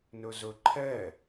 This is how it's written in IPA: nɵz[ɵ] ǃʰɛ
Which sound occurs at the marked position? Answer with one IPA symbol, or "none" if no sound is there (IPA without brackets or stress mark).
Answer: ɵ